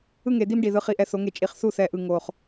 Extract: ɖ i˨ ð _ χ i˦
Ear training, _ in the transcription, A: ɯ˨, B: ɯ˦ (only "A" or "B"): B